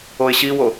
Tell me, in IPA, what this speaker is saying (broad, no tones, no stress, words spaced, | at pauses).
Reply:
oɪ̯ɕiwo